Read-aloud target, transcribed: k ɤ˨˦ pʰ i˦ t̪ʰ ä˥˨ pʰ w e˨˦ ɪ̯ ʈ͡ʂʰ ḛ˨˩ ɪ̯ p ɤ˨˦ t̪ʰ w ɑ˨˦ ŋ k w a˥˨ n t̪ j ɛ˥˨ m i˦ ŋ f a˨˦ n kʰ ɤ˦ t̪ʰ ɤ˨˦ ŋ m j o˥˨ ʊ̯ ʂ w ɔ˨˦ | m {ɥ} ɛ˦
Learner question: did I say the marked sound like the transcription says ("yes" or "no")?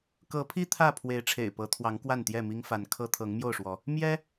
no